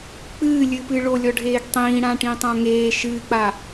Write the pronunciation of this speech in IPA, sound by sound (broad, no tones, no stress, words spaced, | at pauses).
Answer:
k͡pɨːlʲɨpɨ ɭolʲɔɖʱeːɡ tˤĩːɽãʈĩtˤã ŋeː ʃɨːk͡pa